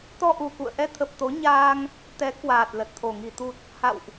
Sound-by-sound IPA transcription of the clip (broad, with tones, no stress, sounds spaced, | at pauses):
t̪ ɔ˧ ʔ u˨˩ k ṵ˧˨ ə̯ ʔ ɛ˧ t̪ʰ ə˨˩ p̚ t̪ o˨˦ ɲ aː˧ ŋ | t̪ ɛ˨˦ k w aː˨˩ t̚ l ə˨˩ t̚ t̪ʰ o˨˩ ŋ i˧˩ t̪ u˨˩ t̚ | h a̰˧˨ w ʔ